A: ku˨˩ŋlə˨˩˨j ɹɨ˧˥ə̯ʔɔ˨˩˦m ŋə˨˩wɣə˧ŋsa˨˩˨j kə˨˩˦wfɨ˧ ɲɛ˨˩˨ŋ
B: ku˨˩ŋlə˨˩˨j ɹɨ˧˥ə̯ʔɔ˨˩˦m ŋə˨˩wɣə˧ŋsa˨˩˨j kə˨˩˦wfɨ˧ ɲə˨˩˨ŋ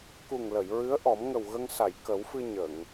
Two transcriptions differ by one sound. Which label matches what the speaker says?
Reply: B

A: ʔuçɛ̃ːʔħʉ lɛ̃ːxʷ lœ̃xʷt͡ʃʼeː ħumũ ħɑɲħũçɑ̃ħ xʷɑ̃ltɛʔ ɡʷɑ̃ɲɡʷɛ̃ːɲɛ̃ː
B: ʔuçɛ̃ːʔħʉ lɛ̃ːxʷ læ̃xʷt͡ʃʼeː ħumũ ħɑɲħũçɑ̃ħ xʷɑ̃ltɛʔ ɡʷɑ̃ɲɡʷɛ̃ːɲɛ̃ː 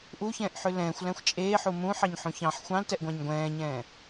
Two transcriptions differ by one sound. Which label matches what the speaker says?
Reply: B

